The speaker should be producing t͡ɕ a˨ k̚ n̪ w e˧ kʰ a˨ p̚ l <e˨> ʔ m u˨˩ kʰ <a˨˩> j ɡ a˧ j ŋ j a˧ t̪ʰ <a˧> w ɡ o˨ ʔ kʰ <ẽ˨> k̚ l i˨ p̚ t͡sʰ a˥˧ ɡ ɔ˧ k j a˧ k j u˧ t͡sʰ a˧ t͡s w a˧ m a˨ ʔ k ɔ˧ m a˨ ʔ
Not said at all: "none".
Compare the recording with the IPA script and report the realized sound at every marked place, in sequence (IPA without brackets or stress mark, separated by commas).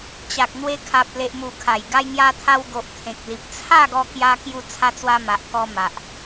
e˨, a˨˩, a˧, ẽ˨